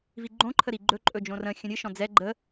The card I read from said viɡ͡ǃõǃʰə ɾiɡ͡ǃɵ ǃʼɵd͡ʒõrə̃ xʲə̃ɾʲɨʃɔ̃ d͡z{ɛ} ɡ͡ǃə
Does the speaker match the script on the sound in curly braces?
yes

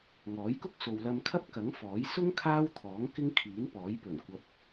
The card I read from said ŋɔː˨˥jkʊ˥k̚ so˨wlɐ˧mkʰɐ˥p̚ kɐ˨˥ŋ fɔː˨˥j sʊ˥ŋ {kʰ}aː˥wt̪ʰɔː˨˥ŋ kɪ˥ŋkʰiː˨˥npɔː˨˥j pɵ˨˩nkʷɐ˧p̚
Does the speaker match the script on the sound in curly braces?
yes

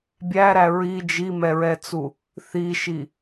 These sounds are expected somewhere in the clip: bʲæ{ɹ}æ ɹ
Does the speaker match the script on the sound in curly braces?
no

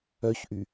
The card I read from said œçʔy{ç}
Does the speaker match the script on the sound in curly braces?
no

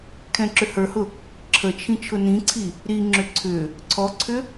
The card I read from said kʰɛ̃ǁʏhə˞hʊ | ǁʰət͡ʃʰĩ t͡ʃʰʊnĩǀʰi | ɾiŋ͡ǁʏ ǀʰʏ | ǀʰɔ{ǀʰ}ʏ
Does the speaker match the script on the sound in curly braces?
yes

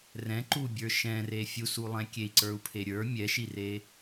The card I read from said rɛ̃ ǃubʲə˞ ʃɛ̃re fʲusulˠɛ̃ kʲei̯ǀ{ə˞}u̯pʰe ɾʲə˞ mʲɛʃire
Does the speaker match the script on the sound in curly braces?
yes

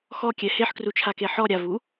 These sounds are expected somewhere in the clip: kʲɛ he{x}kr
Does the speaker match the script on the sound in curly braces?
no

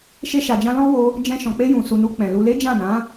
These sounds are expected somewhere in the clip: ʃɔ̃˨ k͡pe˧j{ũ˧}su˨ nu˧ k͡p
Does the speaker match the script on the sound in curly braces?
no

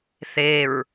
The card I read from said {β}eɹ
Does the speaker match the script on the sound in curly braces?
no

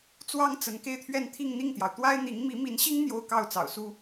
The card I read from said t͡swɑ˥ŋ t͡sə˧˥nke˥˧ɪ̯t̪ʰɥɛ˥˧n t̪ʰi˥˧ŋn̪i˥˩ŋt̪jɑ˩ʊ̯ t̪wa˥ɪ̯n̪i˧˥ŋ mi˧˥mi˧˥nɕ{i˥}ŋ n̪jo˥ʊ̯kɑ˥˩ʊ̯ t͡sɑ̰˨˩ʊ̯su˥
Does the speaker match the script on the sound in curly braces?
yes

